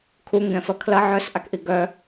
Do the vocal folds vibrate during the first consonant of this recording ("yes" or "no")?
no